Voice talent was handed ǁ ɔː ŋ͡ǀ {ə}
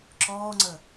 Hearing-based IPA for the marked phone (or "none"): ə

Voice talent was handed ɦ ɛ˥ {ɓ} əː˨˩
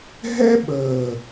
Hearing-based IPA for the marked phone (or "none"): ɓ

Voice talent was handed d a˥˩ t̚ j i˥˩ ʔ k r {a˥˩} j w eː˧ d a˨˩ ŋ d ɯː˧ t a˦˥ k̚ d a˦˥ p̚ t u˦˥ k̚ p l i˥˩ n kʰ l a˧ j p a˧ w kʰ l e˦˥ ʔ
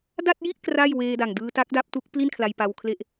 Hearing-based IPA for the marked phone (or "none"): a˥˩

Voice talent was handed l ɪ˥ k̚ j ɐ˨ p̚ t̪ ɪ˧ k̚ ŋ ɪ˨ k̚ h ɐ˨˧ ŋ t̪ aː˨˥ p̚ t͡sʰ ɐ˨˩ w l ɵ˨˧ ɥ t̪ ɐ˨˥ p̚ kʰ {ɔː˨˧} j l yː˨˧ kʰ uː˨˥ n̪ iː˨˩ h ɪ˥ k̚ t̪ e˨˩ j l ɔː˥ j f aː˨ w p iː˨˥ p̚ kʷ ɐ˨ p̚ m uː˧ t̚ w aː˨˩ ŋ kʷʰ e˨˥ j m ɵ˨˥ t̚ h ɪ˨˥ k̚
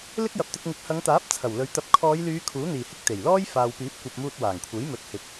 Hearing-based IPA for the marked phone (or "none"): ɔː˨˧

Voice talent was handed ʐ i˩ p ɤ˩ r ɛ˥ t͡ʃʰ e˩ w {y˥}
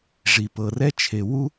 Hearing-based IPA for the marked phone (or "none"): u˥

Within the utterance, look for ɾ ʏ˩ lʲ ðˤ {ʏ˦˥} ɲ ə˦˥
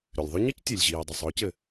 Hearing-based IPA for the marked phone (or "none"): ʏ˦˥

